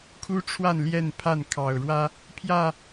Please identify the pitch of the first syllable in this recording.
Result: high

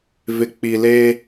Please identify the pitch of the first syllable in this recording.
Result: low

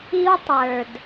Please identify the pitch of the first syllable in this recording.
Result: high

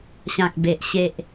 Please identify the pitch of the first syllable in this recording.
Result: low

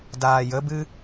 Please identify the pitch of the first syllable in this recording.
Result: low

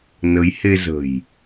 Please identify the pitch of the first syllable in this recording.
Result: rising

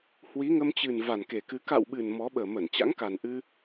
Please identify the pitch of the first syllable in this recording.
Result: rising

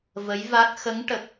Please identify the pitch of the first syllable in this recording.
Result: rising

